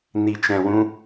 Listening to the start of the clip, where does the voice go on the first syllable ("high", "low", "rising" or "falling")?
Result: low